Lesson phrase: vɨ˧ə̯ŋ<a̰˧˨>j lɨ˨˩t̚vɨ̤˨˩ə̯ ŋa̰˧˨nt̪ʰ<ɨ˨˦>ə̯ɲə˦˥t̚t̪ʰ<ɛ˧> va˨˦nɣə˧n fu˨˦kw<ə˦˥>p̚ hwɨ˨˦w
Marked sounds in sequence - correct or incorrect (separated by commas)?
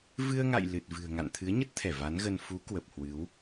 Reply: correct, correct, incorrect, incorrect